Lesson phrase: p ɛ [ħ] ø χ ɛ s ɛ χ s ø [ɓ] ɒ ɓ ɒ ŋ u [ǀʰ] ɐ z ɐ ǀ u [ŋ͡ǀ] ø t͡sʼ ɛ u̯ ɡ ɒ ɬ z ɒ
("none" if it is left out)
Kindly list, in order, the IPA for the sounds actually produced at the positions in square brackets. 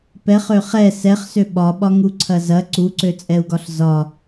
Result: χ, ɓ, ǀʰ, ǀ

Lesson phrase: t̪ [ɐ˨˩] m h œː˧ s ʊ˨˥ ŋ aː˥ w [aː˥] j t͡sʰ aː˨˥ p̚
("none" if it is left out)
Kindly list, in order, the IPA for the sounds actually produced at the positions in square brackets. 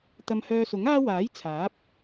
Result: ɐ˧, aː˨˥

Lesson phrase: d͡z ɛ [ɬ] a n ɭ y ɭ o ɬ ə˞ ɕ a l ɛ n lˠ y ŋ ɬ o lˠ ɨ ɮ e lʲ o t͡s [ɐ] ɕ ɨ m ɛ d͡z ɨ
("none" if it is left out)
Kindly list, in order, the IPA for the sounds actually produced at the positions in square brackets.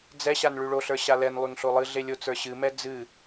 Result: ɕ, ə˞

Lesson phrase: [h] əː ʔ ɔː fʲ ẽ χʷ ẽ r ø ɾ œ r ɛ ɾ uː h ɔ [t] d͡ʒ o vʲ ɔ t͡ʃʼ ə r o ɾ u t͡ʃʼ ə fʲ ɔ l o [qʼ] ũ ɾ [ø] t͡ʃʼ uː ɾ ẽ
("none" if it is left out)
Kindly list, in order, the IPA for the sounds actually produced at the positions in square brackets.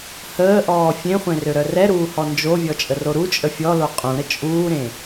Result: h, n, qʼ, ə

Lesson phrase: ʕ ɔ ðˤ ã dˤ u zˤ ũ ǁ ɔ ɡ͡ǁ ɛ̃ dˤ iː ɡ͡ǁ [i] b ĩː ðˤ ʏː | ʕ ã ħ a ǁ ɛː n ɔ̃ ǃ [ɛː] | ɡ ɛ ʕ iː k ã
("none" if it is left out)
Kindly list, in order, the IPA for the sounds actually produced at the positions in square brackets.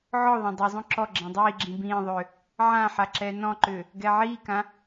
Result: ĩ, ʏː

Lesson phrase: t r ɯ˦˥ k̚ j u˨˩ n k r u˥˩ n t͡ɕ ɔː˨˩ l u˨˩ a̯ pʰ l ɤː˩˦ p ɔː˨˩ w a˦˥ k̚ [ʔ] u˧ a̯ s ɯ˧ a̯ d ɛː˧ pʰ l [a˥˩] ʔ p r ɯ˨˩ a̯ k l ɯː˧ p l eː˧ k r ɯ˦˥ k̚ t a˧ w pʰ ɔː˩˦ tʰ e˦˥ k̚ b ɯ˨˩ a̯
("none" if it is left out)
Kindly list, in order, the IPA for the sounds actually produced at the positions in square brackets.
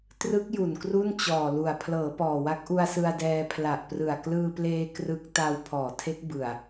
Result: ʔ, a˨˩

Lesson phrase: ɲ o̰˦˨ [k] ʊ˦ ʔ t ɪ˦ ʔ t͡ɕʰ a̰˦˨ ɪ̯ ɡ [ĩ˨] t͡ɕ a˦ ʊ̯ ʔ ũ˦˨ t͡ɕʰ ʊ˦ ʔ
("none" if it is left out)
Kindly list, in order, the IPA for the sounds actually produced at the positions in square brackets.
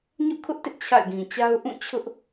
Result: kʰ, ĩ˨

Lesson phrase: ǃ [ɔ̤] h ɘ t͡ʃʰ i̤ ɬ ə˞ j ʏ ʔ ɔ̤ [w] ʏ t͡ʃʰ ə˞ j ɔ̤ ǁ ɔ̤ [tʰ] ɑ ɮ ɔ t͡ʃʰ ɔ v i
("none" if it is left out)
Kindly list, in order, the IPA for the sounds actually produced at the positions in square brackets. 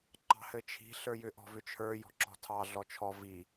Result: ɑ̤, v, tʰ

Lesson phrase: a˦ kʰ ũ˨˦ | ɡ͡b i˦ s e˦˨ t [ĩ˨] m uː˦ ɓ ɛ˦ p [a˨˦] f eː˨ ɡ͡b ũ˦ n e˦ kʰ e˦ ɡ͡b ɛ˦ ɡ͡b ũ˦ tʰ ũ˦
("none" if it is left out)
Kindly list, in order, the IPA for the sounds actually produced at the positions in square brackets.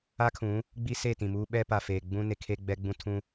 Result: ĩ˨, a˨

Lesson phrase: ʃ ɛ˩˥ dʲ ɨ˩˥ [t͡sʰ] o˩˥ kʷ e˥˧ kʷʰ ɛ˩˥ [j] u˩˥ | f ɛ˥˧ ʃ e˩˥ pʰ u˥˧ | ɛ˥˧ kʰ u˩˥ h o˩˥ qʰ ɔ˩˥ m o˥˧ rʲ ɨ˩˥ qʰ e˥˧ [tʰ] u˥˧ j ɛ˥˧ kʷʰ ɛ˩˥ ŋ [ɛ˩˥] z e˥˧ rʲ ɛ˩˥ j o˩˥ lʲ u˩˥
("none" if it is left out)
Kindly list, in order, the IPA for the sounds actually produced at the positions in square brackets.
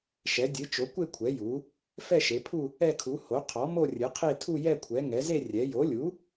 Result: t͡ʃ, j, tʰ, ɛ˩˥

